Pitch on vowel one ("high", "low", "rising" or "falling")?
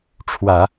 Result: low